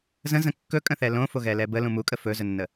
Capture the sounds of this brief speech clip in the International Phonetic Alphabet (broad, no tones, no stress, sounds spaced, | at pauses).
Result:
z ə̃ z ə̃ kː ɵ kʼ ə̃ θ ɛ l õ f o ɣ ɛ l ɛ b ə l ũ m u kʼ ə f ɵ z ɵ nː ə